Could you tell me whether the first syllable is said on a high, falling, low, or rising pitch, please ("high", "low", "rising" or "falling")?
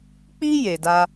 high